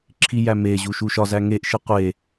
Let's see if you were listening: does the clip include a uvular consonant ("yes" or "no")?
yes